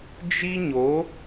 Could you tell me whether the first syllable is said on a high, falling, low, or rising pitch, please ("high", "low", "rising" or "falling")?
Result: high